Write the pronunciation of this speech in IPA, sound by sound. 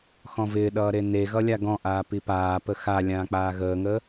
x ɔ̃ v ɪː ɗ ʌː ɾ e n e ɣ ʌ lʲ a ɡ ɔ̃ ʔ aː p i p aː p ə x a lʲ ãː k͡p aː ɣ əː ŋ əː

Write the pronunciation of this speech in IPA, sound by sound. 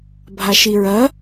bʱ a ʃ i ɹ ɐ

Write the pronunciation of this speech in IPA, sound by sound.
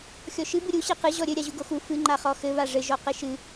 xʲ ɔ ʃ ɨ b ɨ ɾʲ u ɕ e q ɨ ʑ ɔ ɾʲ ɘ ɾʲ a ʑ u ɡ o x u f ɨ ŋ͡ǃ a χ ɔ x ɘ β a ʐ ɘ ʒ ɔ q ɘ ʃ ɨ

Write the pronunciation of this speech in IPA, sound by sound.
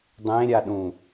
dˤ ẽ ɾʲ a ɗ ũ

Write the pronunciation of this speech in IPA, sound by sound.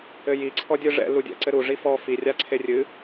ɘ j i ǀʰ ɔ dʲ ɨ ʐ ɛ̰ l u dʲ ɛ̰ ǀ ɘ ɾ u ʐ i f ɔ f i rʲ a ǀʰ e rʲ ɨ

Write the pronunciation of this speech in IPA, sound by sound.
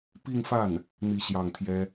p i˥˧ ŋ f a˥˩ n | n̪ i˥˧ ɕ j ɑ˥˩ ŋ t̪ʰ j ɛ˥

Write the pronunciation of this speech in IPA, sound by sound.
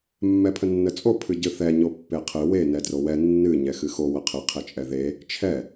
mː ɛ pʰ ə nː ə t͡sʼ o pʰ ɨ ɟ ɨ θ ɛ ɲ o pː e qʰ ɨ w e n ɛ d r o w ɛ nː ɨ ɲ ɛ x ɨ x o w ə qʰ ɨ qʰ e t͡ʃʼ ɛ ð e | t͡ʃʰ ɛ

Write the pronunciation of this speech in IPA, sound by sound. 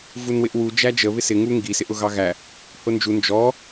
v u n w ɪ ʔ w u d͡ʒ æ d͡ʒ ə β ɪ s ɪ ŋ u ŋ ɡ i s ɪ ʔ ʊ ɣ ɑ ɣ æ | h ʊ n d͡ʒ u n d͡ʒ ɔ

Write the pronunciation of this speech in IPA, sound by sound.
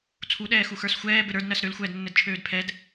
t͡sʰ u ɗ ɛː x u x ə˞ s xʷ ɛː b ɘ ɾ ə˞ d n ɜ s ɾ ø l xʷ ɛː d nː ɘ d t͡ʃʰ øː d pʰ ɛ d

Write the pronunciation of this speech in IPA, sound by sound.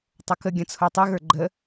tˤ o k ə ɡʲ ɐ̃ t͡sʰ o tˤ ɨ ɣ ə˞ ɡ͡ǃ ə

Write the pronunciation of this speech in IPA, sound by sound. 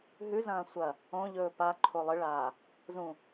ɦ ʉ z ɐ̃ː sʷ ɐ | õ ʎ ɵː p a ǃʰ o lˠ ɨ ɭ aː | z ũ

